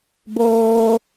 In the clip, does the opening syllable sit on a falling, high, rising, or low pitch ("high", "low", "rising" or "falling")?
high